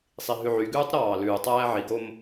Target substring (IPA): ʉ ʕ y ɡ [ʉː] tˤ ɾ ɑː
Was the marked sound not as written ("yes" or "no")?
no